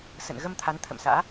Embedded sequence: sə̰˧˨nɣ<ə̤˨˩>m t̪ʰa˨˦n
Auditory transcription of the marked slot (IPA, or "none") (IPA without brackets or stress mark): ə˧